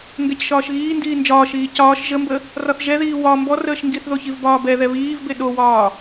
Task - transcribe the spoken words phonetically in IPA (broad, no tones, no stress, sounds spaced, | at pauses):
ŋ ɡ ɛ c ʃ ɒː ʃ ɣ iː n d iː n d͡ʒ ɒː ʃ iː c ɒː ʃ ʒ ə m b ə | r ɒ θ ʒ ɛ ð iː w ɒ m b ɔ r əː ʃ ŋ ɡ i θ ð o ç i v b ɒː b ɛ ð ɛ β iː v b e ɗ o w ɒː